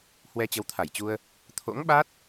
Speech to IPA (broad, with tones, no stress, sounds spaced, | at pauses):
h w ɛ˧ t͡ɕ ə˨˦ w t̪ʰ a˧˩ j t͡ɕ u˧ ə̯ | t̪ʰ o̰˧˥ ŋ ɓ a˦˥ t̚